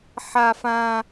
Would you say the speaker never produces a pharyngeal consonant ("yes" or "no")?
no